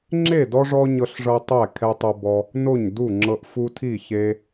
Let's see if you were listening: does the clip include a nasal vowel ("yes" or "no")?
no